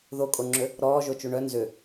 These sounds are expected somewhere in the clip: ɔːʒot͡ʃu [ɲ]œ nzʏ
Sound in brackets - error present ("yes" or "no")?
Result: yes